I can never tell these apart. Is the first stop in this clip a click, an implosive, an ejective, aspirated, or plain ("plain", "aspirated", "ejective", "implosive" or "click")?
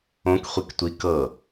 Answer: plain